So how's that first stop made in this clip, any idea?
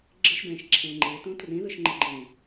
click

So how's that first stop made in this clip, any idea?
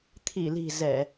aspirated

